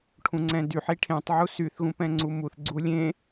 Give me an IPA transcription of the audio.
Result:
ʈʰũŋ͡ǀɛ̃dyħ iʈʰẽtˤ ʕusyθ ɣũpɛ̃ŋ͡ǀumuθ ɡ͡ǀulʲẽ

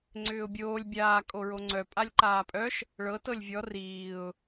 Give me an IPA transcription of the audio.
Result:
ŋ͡ǀʏːʊ̯bʲoːlʲ bʲaː kʼoɹoŋ͡ǀœ pʼalʲǃaːpʼœʃ | ɭɤ tɤlʲvʲɔ riːʊ̯

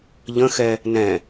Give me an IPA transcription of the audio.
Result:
ʎə̃xɛ | nɛ̃

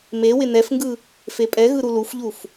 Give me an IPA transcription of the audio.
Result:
me wɪnɛfŋɡɯ | fepʼɛɣɯ ɾulufʎuf

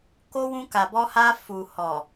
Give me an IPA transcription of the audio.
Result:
ko˦ wũ˧ka˨bɔ˧ha˧ fu˨ hɔ˨

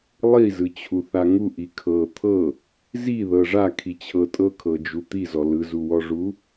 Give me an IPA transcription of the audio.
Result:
lˠizɯt͡ɕʰuθa ŋuʔi kʰɤ t̪ʰɤ | ziðɤ ʐakʰit͡ɕʰɤ tʼɤkʰɤd͡ʒu t̪izɔ lɯzuwɔʐu

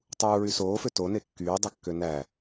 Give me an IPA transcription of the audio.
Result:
tˤuːɹy soːfø tone kːyːdˤɯkːø næ

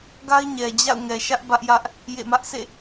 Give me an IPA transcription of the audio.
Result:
ɡa˦ɪ̯ɲɛ˨ d͡ʑa̰˦˨ʊ̯ŋɛ˨ ʃä˦ʔbä˦ʔjä˦ʔ | jḛ˦˨mä˦ʔ sʰḛ˦˨

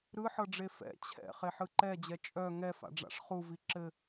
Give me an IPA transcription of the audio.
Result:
ɾɯħɤɖ͡ʐe fɛ̰ t͡ɕʰɛ̰ χeħɯǃɛd͡ʑɛ t͡ʃʼœ ŋɛfa̰ɖ͡ʐa̰ʂ χuvi ǁɘ

